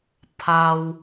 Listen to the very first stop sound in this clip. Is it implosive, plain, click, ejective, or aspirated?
aspirated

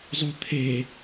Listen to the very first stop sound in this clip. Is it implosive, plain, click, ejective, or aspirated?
aspirated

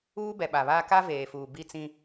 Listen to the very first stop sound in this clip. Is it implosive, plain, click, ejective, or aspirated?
plain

